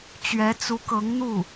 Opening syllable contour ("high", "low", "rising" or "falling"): rising